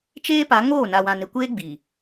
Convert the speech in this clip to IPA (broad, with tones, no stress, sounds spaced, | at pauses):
t͡ʃ eː˦ p a˨˦ ŋ oː˦˨ n a˨ w ã˨ n ɪ˨ kʷ eː˦ ɡ͡b i˨